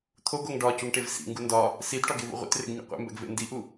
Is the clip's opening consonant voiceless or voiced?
voiceless